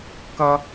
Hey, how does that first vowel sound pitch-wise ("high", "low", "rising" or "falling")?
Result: high